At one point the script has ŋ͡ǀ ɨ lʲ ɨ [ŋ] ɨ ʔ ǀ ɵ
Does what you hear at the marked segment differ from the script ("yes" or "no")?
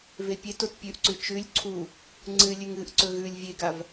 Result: no